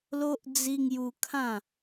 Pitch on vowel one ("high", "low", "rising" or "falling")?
high